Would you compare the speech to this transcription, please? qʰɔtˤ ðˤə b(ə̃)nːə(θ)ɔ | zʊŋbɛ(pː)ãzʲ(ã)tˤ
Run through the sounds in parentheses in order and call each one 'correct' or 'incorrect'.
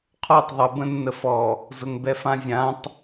correct, incorrect: f, incorrect: f, correct

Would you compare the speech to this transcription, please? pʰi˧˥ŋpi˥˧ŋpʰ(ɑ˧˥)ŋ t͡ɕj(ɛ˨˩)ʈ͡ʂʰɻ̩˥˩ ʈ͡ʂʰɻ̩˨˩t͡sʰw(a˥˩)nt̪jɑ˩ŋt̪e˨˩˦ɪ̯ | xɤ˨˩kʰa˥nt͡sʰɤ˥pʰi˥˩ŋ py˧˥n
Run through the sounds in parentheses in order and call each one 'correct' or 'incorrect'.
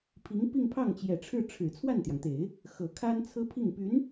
incorrect: ɑ˥˩, correct, correct

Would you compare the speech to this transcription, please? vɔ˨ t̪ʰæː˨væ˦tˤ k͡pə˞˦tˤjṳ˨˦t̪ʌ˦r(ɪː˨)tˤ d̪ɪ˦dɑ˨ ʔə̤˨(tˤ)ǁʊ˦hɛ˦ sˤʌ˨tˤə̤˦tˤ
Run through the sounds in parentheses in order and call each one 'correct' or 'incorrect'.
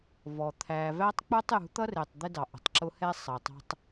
correct, correct

